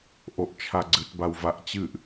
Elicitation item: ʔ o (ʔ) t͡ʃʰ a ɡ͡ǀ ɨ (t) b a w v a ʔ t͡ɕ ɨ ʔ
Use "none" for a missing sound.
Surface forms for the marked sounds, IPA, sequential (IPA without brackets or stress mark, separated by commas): ʔ, t